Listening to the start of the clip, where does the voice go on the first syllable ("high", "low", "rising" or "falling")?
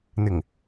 low